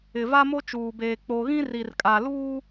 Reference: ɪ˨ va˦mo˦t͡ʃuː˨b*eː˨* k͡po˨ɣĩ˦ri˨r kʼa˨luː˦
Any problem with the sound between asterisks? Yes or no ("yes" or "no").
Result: no